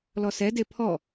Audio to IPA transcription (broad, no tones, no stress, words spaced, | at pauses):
lɔsɛ depʰɔ